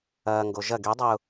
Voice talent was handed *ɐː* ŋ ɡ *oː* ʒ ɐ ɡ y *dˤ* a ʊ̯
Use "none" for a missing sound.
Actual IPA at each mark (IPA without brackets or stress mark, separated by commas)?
ɐː, o, dˤ